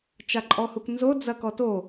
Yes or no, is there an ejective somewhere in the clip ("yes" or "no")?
yes